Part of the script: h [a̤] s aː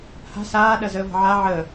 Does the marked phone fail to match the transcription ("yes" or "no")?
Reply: no